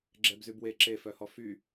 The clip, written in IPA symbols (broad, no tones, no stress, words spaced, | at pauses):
ɡ͡ǁɛbzybwe ǁefœhɔ fy